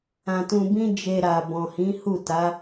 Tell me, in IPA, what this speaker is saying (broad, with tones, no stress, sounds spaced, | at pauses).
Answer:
ã˧ t ũ˧ b ĩ˦ d͡ʒ e˧ ɾ a˨ b ɔ̃˨ h ĩ˨˦ h u˦˨ t a˨˦